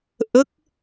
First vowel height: mid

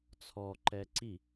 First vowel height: mid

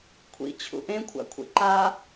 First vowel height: high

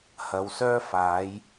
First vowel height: low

